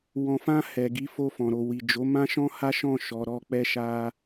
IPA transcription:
w ɔ̃˨ f ã˧ h ɛ˨ ɡ i˨˦ f o˧ f ɔ̃˨ ɾ o˨ w i˨ d͡ʒ o˨˦ m ã˦ ʃ ɔ̃˦ h a˦ ʃ ɔ̃˦˨ ʃ ɔ˧ ɾ ɔ˦ k͡p ɛ˦ ʃ a˦

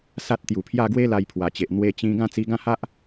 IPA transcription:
s a˦ t̚ t̪ j u˨˩ pʰ j a˥˧ ɡ w e˦ l a˧ j pʰ w a˨˩ t͡ɕ e˨ ʔ n̪ w e˧ t͡ɕ ĩ˧ ɡ ã˥˧ t͡s i˧ ɡ ã˥˧ h a˦ ʔ

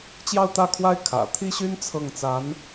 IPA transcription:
t͡ɕ j ɑ˥˧ ʊ̯ t̪ ä˥˩ kʰ w a˥ ɪ̯ kʰ ä̰˨˩ t̪ʰ i˥ ɕ y˥ n t͡sʰ ɤ˥˩ ŋ t͡s a˧˥ n

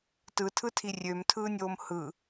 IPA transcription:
t ɯ tʰ ɯ tʰ i rʲ ø m tʰ ɯː nʲ oː m h ɯ

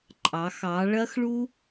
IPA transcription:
ǃʼ ɑ˩˧ x ɑ˩˧ ɭ ɐ˥ x ɭ u˥

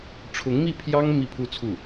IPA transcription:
ʈ͡ʂʰ ʊ˧˥ ŋ m i˥˩ pʰ j ɑ˥ ŋ m i˥˧ pʰ u˥˧ t͡sʰ u˥˩

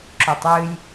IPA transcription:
ǁ o tˤ j ɨ j

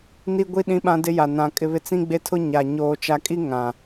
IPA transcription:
n i˦ ɡʷ i˦ ɗ ĩ˦ ɓ ã˦ d ɪ˦ j a˨ n ã˨ kʼ ɪ˦ β ɪ˦ t͡s ĩ˦ ɡ͡b e˦ tʰ ʊ˦ ɲ a˨ ɲ oː˨ t͡ʃ a˨ kʼ i˦ ŋ ã˨

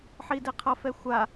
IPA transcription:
ħ i d i qʰ ʌ f ɛ xʷ a

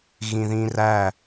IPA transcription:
ɣ ĩ ð ĩ r æ

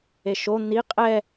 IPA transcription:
e ʃ o n̪ i qʼ ɛ

